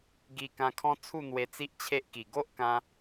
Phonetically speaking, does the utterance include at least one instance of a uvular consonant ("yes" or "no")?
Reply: no